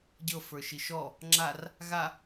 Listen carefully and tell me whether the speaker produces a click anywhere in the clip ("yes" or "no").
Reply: yes